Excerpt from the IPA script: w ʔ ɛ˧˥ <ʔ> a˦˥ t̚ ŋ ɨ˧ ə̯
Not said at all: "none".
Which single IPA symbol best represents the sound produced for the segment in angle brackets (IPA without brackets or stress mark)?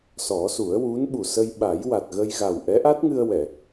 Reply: ʔ